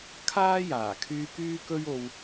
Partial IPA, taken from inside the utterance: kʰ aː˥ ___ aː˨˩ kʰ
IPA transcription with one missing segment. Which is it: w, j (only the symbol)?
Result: j